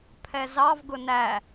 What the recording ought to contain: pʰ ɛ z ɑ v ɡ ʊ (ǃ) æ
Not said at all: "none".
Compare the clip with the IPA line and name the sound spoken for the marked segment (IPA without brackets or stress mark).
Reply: n